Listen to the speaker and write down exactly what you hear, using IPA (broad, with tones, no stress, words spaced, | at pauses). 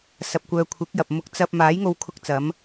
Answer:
sɐ˨p̚kʷœː˨ kʷʰɪ˨˥k̚jɐ˨p̚ mʊ˧k̚t͡sɐ˧p̚ maː˨˥jŋo˧wkʰʊ˧k̚t͡sɐ˨˧m